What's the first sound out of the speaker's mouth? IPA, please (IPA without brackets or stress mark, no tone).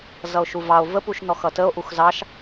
z